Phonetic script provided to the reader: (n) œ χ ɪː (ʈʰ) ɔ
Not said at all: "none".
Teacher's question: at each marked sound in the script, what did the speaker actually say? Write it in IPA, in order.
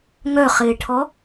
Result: ŋ, ʈʰ

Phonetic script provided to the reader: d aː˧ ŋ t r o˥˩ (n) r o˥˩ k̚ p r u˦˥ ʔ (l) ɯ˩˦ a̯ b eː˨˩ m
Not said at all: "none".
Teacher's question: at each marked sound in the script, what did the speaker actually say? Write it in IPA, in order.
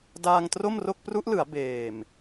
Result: m, l

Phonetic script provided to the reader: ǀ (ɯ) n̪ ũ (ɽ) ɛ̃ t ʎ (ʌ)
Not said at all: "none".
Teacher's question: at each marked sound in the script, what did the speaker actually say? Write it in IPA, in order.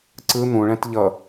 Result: ɯ, ɭ, ʌ

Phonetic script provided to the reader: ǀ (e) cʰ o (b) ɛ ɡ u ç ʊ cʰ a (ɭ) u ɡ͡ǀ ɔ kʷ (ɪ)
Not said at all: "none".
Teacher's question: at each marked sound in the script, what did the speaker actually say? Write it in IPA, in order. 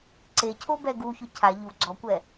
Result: e, b, ʎ, ɛ

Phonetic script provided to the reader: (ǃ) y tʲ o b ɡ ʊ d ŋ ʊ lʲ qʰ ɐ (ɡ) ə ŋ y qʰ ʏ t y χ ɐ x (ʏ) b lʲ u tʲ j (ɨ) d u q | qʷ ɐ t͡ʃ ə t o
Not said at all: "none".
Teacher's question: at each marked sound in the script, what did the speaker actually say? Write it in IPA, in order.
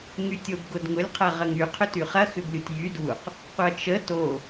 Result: ŋ, ʁ, ʏ, y

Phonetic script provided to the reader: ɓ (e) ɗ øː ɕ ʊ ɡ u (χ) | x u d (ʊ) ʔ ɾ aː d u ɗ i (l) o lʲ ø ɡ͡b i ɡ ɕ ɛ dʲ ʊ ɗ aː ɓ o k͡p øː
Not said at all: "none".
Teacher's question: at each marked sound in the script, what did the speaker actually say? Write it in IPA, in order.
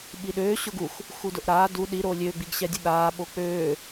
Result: i, x, ʊ, ɾ

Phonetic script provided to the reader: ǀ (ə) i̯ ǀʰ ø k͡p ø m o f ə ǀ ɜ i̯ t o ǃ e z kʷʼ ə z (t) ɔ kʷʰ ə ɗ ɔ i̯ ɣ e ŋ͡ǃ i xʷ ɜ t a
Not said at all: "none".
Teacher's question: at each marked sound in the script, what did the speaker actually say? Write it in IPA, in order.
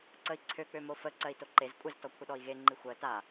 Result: ə, t

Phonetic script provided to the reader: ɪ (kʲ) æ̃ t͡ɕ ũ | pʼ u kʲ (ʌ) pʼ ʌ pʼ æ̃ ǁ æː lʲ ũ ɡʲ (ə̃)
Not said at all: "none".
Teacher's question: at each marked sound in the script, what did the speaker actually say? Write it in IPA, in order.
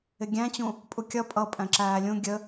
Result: ɡʲ, ʌ, ə

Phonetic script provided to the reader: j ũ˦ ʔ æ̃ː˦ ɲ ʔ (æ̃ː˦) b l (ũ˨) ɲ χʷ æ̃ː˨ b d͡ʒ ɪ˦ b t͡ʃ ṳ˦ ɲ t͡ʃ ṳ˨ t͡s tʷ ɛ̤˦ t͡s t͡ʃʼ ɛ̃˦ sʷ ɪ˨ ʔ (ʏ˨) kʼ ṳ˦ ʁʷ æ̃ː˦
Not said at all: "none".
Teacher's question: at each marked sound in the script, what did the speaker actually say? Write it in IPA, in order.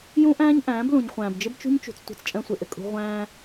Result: æ̃ː˨˦, ũ˨, ɪ˨

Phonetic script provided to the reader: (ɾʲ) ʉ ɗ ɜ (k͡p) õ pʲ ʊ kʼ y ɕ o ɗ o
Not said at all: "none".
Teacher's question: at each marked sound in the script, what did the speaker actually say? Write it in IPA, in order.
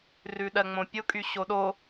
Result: r, ŋ͡m

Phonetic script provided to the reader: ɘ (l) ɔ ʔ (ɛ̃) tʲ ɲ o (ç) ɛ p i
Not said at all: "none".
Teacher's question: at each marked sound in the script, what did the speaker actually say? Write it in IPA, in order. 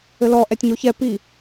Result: l, ɛ, ç

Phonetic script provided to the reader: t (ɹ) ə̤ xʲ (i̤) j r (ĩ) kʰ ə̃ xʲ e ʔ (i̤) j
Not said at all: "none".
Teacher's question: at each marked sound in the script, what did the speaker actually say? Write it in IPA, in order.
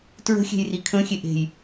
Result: ɹ, e̤, i, e̤

